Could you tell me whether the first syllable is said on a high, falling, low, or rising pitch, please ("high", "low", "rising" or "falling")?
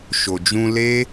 low